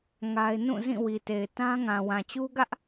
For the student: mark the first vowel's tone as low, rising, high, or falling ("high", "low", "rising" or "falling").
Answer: high